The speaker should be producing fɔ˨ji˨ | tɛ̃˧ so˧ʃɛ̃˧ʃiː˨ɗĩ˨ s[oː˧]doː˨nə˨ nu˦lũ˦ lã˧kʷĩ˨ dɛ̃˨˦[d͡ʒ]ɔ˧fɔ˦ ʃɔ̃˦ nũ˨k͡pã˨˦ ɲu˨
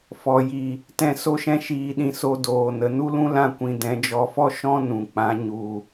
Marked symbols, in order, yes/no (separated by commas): no, yes